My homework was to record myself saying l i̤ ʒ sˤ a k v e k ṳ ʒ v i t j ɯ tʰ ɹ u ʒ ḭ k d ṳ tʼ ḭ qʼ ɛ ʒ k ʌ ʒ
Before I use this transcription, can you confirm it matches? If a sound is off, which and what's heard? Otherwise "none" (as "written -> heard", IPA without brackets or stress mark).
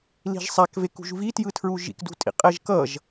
none